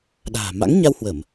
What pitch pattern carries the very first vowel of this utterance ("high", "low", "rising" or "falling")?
low